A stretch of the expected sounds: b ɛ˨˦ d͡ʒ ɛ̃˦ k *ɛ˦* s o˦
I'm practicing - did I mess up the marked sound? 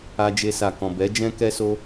no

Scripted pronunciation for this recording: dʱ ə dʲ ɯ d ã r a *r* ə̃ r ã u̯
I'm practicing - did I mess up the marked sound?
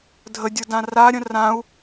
yes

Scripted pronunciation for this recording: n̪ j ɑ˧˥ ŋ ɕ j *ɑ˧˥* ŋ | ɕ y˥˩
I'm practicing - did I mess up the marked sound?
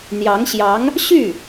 no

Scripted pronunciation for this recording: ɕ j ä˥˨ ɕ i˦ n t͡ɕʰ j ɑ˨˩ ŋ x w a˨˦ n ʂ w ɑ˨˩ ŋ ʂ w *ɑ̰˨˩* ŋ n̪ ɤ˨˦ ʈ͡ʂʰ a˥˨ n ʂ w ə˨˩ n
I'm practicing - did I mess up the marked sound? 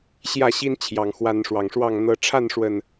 yes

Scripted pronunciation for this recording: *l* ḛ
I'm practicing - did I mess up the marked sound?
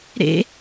yes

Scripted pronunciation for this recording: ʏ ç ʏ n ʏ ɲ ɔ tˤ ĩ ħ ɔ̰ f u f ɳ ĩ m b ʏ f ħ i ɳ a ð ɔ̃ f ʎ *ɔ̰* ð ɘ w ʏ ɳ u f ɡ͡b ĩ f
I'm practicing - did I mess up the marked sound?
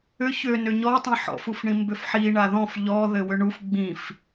yes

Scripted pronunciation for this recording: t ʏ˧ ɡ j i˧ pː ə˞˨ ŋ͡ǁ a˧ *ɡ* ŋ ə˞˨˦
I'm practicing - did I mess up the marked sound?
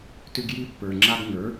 no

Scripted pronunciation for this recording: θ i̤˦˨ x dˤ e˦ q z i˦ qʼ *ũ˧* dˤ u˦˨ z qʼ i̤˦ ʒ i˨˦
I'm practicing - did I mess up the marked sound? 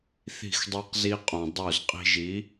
yes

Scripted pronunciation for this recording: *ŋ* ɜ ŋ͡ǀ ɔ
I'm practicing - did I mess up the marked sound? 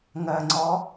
no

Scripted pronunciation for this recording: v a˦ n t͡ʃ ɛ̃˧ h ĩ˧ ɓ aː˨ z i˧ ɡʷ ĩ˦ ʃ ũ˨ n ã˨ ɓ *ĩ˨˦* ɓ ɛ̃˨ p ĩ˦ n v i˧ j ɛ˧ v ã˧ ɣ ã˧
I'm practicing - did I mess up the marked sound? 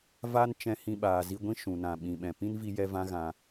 yes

